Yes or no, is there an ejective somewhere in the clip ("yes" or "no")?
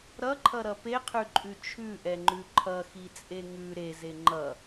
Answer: yes